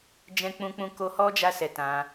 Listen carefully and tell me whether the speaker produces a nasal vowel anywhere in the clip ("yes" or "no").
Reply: yes